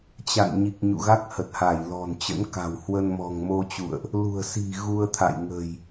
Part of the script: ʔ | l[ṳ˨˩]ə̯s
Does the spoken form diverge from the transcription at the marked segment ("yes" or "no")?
no